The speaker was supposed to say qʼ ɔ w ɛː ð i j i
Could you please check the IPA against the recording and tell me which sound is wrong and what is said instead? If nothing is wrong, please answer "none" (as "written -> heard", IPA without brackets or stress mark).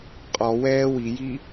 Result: ð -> w